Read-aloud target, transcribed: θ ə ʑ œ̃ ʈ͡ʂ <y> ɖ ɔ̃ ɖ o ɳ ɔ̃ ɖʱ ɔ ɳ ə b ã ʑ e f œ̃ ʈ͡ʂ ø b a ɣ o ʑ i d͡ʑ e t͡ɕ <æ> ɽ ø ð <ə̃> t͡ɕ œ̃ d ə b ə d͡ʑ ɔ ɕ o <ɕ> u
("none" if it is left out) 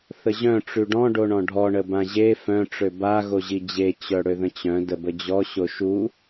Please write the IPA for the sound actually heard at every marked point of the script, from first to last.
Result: y, œ, ə̃, ʃ

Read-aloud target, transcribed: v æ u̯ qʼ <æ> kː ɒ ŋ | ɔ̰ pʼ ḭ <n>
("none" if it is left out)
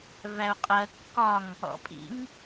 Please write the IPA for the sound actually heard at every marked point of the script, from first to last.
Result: ɜ, ŋ

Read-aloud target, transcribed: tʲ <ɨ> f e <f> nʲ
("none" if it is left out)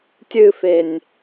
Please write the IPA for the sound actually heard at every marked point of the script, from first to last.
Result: ɨ, none

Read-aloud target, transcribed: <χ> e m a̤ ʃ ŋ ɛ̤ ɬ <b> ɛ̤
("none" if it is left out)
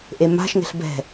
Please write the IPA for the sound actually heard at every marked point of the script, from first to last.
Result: ʔ, b

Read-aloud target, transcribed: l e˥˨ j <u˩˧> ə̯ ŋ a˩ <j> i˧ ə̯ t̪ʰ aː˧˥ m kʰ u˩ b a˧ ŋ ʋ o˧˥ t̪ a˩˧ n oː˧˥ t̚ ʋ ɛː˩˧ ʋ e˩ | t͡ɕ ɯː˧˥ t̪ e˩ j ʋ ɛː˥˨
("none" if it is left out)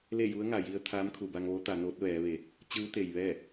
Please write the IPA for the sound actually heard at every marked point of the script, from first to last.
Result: u˧˥, j

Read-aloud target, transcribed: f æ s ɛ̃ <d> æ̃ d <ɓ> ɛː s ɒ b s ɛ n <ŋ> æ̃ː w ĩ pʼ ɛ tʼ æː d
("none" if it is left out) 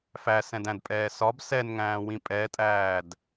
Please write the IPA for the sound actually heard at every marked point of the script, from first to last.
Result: d, pʼ, ŋ

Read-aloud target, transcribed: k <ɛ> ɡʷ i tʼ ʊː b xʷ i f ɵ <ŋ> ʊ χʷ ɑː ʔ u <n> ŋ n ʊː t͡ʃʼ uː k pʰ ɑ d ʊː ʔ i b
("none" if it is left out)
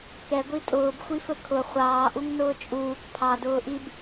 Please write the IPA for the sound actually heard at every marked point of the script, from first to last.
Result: ɛ, kʰ, none

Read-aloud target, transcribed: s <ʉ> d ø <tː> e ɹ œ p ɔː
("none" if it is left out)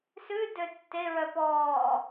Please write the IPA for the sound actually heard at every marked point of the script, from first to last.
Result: ʉ, tː

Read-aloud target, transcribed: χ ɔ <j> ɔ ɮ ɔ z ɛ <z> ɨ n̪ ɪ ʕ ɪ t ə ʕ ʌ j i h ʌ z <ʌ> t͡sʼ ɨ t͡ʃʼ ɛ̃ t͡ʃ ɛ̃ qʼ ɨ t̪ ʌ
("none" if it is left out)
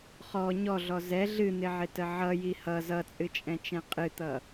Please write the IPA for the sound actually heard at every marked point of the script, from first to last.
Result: ɲ, ɮ, ʌ

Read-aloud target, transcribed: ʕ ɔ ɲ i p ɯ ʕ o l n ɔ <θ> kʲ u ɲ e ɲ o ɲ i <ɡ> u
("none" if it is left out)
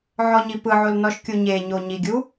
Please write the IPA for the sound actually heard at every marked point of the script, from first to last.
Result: ʃ, ɡʲ

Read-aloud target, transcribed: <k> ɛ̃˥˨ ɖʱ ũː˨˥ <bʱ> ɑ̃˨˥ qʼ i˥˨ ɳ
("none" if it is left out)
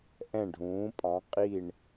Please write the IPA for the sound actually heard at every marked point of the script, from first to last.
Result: ʔ, pʼ

